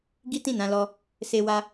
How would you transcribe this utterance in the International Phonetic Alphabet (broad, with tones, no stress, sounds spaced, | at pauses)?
ɡ i˦ t ĩ˦˨ n ã˧ l ɔ˧ | s e˧ w a˧